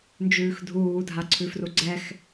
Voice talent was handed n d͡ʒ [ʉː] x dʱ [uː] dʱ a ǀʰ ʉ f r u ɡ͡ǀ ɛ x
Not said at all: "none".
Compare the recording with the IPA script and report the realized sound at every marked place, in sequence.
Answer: ʉː, uː

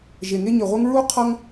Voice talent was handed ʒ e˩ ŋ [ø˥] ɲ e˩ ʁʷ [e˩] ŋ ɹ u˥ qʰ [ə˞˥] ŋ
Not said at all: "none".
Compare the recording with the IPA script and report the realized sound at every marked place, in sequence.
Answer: e˥, e˥, ʌ˥

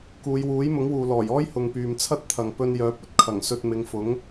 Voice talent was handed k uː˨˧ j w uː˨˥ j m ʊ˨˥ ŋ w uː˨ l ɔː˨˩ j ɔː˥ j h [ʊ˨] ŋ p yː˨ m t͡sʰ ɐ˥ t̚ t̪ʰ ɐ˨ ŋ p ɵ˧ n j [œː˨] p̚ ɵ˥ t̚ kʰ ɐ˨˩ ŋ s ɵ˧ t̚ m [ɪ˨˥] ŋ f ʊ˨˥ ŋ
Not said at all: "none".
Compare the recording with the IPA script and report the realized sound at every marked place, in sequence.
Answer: ʊ˨, œː˨˥, ɪ˨˧

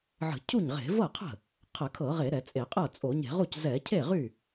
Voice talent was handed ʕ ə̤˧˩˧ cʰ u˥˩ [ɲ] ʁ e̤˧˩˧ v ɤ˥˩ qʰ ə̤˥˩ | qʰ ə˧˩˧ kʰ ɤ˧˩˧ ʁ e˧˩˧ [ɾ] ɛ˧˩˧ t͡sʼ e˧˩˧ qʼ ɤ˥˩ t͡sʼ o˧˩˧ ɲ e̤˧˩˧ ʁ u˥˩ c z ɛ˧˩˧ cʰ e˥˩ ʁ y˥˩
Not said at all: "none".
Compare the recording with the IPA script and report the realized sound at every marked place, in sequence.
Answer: ɲ, ɾ

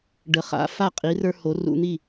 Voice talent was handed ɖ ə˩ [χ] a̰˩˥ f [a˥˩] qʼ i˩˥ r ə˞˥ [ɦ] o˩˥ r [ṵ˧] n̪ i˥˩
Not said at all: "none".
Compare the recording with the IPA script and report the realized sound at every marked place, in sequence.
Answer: χ, a˥˩, h, ṵ˧

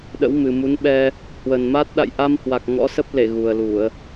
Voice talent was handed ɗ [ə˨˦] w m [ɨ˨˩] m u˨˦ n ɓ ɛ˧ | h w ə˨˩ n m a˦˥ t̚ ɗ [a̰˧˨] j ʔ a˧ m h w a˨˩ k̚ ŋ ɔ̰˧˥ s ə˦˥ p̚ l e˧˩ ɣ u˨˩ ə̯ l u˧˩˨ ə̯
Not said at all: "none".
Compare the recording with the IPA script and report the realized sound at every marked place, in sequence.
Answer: ə̰˧˥, ɨ˨˩, a̰˧˨

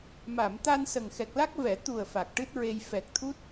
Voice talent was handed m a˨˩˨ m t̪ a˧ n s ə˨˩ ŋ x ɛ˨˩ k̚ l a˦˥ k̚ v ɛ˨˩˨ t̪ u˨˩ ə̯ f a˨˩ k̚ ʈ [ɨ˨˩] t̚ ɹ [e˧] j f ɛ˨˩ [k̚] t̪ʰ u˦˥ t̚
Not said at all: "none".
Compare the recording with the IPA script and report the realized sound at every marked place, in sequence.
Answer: ɨ˦˥, e˧, k̚

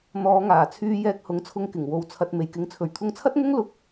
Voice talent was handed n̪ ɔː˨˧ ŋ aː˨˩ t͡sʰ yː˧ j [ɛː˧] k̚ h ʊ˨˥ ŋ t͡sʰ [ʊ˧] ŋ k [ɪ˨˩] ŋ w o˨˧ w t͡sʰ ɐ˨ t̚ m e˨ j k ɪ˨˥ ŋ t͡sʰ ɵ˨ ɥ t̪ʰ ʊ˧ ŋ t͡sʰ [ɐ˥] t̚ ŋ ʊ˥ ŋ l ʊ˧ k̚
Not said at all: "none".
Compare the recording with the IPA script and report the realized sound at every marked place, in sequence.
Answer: ɛː˧, ʊ˧, ɪ˨˩, ɐ˥

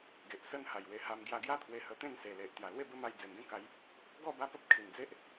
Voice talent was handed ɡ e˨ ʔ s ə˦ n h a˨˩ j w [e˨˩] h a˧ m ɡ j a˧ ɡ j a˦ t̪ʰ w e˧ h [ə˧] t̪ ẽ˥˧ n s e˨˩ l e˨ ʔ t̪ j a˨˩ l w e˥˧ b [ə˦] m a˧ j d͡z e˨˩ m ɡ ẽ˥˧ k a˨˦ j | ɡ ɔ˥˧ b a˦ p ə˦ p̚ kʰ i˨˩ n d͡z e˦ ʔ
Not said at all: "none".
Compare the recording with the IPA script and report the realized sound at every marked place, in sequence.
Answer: e˧, ə˧, ə˦

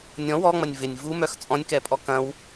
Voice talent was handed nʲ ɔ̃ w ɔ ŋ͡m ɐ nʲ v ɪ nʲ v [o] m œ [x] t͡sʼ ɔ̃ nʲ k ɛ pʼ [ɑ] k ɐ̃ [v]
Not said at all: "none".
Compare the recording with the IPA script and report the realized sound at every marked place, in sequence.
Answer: u, x, ɔ, w

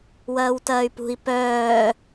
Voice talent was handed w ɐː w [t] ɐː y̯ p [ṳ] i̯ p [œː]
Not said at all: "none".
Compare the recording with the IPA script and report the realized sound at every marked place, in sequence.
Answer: t, ṳ, œː

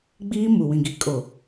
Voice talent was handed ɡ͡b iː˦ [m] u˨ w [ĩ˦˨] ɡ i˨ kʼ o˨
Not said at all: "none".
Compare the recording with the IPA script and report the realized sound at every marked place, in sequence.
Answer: m, ĩ˨

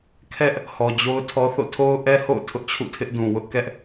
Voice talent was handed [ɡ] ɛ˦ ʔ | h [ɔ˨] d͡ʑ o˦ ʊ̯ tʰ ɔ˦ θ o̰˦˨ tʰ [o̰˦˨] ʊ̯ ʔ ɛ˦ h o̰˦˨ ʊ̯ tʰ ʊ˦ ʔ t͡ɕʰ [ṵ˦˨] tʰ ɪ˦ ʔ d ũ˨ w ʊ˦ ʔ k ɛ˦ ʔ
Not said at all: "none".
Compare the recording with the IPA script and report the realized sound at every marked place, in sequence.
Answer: kʰ, ɔ˨, o˦, ṵ˦˨

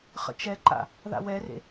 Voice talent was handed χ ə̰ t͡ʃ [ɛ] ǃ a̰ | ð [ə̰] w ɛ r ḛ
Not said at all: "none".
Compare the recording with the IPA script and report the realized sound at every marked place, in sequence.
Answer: ɛ, a̰

